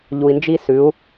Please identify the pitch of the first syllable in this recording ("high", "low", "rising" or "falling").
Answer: low